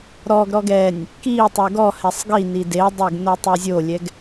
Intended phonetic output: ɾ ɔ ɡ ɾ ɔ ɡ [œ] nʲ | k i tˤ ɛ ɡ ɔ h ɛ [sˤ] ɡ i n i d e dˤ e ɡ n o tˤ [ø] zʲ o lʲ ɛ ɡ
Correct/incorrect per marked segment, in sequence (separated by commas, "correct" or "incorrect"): incorrect, correct, incorrect